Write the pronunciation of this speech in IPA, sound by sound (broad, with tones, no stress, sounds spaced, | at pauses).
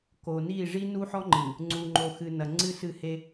k o˨ n i˦˨ ʐ i˦ n u˦ ħ ɔ˦ ŋ͡ǃ ɨ˨ | ŋ͡ǀ u˨ ŋ͡ǃ o˨ x ɨ˨ n ɐ˨ ŋ͡ǀ ɨ˦˨ s ɨ˦˨ h e˦